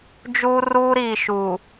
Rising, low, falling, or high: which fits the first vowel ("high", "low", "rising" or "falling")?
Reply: high